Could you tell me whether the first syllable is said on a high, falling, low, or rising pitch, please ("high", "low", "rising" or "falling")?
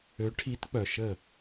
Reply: rising